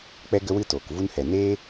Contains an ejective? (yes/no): no